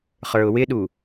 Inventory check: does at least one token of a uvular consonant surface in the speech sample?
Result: yes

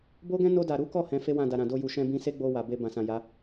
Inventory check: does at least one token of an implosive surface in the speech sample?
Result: no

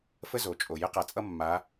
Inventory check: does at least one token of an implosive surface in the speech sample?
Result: no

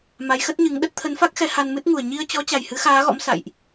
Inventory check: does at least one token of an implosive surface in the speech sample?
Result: yes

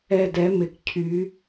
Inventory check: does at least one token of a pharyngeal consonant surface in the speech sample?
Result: no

